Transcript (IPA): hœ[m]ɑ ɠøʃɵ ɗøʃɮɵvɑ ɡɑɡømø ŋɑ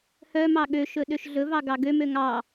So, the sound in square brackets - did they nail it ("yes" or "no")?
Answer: yes